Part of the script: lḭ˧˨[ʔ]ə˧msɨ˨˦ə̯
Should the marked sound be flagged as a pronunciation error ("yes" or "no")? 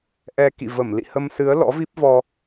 yes